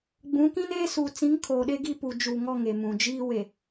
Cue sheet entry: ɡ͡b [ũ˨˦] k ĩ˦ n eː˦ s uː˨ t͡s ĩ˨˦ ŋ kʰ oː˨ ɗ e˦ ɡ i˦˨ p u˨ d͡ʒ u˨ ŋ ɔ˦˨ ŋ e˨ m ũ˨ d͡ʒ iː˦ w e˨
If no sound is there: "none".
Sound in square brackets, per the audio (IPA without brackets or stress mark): ũ˨˦